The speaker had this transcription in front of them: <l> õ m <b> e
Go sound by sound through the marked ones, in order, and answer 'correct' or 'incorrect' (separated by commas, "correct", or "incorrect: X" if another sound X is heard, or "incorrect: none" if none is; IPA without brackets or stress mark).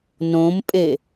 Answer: incorrect: n, incorrect: pʼ